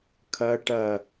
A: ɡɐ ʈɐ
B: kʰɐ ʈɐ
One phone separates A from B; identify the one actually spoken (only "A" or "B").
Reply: B